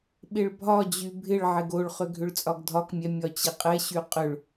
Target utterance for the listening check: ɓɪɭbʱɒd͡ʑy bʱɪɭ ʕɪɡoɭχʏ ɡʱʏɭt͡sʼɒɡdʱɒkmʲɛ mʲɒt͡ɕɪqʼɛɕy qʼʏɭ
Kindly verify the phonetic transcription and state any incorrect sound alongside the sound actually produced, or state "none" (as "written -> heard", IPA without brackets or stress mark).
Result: none